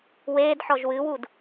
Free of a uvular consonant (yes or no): yes